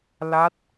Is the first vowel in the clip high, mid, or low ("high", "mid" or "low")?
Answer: low